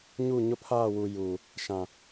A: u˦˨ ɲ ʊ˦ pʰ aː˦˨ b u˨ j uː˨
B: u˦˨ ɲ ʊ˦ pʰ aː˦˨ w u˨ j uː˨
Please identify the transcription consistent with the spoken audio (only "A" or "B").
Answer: B